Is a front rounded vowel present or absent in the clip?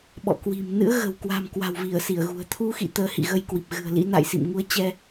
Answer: absent